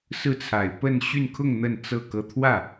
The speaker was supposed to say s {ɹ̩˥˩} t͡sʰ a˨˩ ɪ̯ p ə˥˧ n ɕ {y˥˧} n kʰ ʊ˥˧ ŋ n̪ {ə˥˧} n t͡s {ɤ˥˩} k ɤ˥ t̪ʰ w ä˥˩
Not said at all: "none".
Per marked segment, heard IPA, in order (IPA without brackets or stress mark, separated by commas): ɹ̩˥˩, y˥˧, ə˥˧, ɤ˥˩